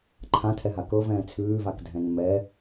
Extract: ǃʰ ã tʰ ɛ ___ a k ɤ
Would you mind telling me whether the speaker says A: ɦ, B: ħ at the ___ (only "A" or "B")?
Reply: A